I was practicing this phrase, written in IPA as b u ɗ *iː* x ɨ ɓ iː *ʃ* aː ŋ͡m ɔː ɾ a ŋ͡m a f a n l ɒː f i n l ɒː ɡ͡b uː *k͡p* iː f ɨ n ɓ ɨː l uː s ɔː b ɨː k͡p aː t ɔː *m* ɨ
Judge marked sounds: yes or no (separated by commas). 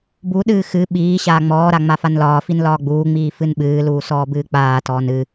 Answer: no, no, no, no